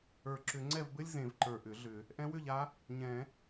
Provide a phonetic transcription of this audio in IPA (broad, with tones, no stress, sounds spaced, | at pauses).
ə˞˨˩˦ ǁ ʏ˨˩˦ ŋ͡ǀ ɛ˥˨ v b ɘ˥ lʲ z ẽ˨˩˦ v ǃ ə˞˨˩ ʔ ʏ˨˩˦ ɮ ʏ˨˩˦ | ʔ ɛ̃˧˥ w ʏ˥˨ ʎ a˧˥ | ɲ ɛ̃˨˩˦